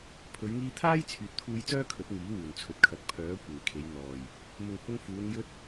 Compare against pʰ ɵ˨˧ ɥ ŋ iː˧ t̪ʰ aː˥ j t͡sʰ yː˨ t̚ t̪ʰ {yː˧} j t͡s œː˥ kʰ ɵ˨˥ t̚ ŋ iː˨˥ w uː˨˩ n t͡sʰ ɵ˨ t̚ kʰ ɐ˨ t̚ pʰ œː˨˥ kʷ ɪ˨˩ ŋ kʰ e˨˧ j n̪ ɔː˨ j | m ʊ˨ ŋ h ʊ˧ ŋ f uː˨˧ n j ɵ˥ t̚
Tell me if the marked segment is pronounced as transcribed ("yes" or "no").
no